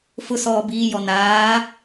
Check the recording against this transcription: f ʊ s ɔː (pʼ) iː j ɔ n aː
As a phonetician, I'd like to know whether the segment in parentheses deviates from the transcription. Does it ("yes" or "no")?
yes